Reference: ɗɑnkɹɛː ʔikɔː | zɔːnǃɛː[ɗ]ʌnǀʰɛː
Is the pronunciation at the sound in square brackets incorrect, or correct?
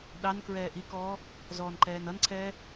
incorrect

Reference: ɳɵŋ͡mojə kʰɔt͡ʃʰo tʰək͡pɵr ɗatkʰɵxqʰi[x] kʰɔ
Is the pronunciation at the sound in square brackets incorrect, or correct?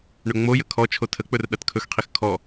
correct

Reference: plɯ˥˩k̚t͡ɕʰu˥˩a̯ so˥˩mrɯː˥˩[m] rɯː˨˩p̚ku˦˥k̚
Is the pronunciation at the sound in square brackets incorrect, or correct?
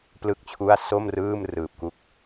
correct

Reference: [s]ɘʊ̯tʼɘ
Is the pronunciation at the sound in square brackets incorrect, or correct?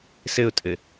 correct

